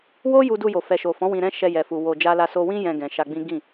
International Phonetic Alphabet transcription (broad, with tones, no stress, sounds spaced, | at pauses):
w o˦ j u˧ d u˧ j o˨ f ɛ˨ ʃ o˨ f ɔ̃˨˦ w ĩ˧ ɾ ɛ̃˦ ʃ ɛ˧ j ɛ˨ f u˨ w o˧ d͡ʒ a˦ l a˦ s o˧ w ĩ˦ j ɛ̃˧ ɡ ɛ̃˨ ʃ a˧ ɡ͡b ĩ˦ ɡ ĩ˦˨